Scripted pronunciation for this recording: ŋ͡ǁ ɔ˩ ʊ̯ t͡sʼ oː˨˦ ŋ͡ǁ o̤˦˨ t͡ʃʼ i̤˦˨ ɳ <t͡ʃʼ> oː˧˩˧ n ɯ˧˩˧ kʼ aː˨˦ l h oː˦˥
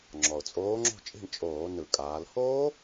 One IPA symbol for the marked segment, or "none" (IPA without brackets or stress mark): t͡ʃʼ